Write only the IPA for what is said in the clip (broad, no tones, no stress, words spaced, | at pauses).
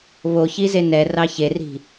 βoçi zenɛ rɑçeri̤